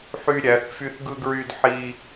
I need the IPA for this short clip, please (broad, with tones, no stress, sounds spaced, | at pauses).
ħ y˧ ɾʲ æ˩˧ θ f y˧ θ ɡ ɯ˧ ɡ ɹ y˧ d ħ i˧